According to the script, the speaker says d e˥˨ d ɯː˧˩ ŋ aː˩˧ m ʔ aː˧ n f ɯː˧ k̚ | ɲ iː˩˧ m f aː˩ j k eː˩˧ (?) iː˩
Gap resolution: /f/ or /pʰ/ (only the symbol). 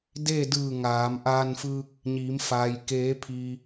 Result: pʰ